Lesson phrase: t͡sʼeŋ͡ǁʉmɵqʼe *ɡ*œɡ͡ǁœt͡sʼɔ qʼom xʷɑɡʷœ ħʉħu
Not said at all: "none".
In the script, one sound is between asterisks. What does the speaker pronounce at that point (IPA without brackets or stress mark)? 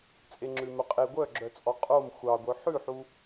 ɡʷ